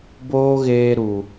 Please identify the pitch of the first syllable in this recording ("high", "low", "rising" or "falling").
high